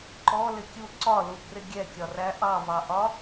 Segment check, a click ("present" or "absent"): present